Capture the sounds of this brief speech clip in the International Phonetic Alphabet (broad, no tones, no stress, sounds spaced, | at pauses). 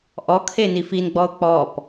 ʔ ɔ kʰ e n i f i n ɡ͡b ɔ ʊ̯ k͡p ɔ p